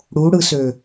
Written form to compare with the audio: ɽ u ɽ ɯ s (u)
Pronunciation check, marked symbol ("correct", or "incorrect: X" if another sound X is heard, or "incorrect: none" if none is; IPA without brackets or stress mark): incorrect: ø